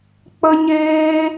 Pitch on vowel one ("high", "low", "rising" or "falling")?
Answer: high